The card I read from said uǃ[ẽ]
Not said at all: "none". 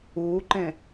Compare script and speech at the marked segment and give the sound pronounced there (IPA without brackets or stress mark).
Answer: ẽ